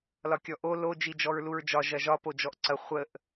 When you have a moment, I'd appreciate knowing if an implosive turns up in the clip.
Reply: no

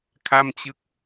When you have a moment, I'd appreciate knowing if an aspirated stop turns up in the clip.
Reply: yes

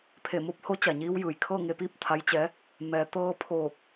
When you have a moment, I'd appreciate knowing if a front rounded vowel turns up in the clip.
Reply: no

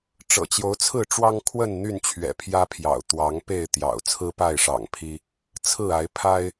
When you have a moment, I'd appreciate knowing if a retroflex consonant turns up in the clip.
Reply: yes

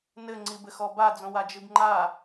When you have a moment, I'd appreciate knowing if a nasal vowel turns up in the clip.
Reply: yes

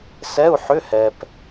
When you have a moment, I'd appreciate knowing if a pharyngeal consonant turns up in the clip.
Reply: yes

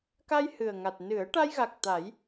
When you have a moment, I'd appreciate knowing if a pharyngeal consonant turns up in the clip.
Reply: no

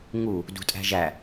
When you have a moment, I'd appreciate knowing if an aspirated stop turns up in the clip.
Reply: no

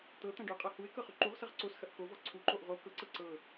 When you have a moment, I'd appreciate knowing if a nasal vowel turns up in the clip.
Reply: yes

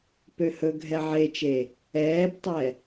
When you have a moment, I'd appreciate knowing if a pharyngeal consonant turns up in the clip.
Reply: yes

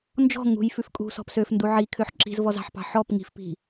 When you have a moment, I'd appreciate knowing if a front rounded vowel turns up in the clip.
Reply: yes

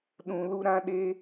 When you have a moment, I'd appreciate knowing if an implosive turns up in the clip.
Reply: yes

